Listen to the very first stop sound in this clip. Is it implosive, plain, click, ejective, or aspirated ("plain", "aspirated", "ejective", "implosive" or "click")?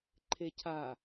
click